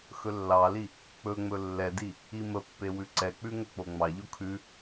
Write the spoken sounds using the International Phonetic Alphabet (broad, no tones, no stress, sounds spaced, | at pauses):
x ɵ lː ɑ l i | k͡p ɵ ŋ͡m ɵ lː ɛ d i | i m ə pː e w ʉ ǀ ɛ k͡p ʉ ŋ ɵ k͡p o ŋ͡m ɑ ʎ o kʰ ʉ